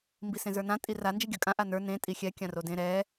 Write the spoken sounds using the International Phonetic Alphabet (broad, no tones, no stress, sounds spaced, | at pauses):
m b i s ẽ z ə˞ n ã tʼ i r a n d͡ʒ i ɡʲ ə˞ kʼ ã ʔ a n ə˞ n ẽ tʼ i xʲ ɛ kʲ ã r o d ẽ ɾ ɛ